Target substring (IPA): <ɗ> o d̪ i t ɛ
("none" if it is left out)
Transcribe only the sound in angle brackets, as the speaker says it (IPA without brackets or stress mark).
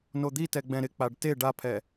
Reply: n